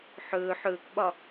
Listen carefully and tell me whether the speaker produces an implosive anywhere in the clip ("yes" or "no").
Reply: yes